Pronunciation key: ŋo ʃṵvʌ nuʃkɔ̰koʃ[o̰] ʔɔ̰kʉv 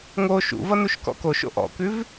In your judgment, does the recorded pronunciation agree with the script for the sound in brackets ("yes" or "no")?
yes